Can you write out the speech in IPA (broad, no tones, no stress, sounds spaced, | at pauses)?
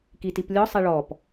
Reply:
k i t i p lʲ ɔ sˤ ɛ ɭ ɔ p